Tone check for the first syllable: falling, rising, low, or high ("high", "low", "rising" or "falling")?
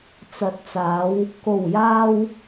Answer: rising